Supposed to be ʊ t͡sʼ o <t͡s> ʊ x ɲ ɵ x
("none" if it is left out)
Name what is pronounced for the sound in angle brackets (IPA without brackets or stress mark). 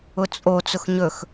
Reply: t͡s